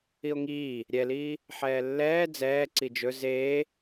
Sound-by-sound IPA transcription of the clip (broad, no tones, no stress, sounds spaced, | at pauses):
i o̯ ŋ iː | ɾʲ ɛ l iː | ħ ɛː lː ɛː d͡z ɛː ǀ i d͡ʒ ɵ z eː